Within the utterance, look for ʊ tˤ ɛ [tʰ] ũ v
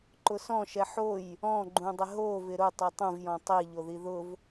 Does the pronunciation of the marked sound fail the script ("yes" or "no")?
yes